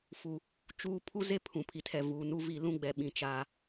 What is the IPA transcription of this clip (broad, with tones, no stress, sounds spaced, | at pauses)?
f u˨ | t͡ʃ uː˦ pʰ u˦ z e˦ pʰ ũ˨ pʰ i˨ tʰ ɛ˨ v uː˨ n u˦ v i˦˨ l ũ˦ ɡ͡b ɛ˨ ɓ ĩ˨ t͡ʃ aː˨